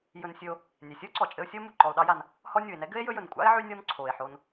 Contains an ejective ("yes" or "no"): yes